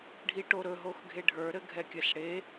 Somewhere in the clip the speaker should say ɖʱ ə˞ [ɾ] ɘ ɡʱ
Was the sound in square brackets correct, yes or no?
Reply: yes